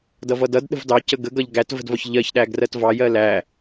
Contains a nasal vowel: no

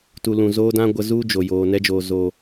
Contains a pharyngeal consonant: no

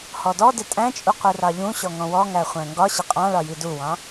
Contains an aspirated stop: no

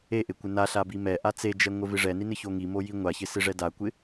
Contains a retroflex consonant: yes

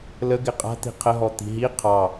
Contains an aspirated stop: yes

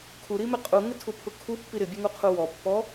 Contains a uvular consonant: yes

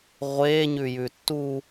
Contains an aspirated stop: no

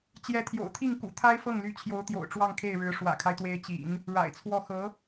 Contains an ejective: no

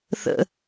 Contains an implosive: no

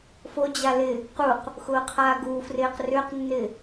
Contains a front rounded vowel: yes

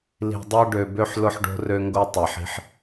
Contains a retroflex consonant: yes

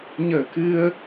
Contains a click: no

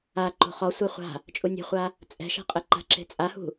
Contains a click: yes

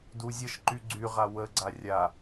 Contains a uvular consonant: yes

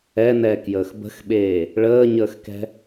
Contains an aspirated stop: no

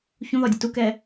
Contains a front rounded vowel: no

